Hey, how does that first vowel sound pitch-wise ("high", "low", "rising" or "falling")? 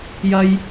high